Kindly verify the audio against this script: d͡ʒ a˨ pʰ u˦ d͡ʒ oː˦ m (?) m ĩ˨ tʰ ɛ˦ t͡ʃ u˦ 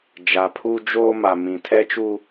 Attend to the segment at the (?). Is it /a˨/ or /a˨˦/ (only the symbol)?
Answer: a˨